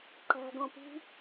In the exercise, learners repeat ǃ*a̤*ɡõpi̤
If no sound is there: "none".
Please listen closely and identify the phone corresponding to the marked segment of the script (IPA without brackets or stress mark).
a̤